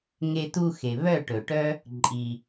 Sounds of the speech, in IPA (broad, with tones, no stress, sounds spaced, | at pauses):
ŋ e˧ t u˧ x e˨ β œ˦˨ ʈ ɵ˨ ʈ œ˦ | ǃʼ i˧